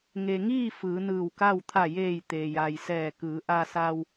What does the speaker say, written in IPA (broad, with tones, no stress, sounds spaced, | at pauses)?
ŋ e˩ ŋ iː˥˨ f ɯː˩˧ n ɯː˧˩ w k a˥˨ w t̪ʰ a˧˩ j eː˧˩ j t̪ eː˩ j a˩ j s ɛː˧˩ k ɯː˩˧ ʔ a˧ s a˧ w